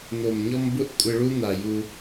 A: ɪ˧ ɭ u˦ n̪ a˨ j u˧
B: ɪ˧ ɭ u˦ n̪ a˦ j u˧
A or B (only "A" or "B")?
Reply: A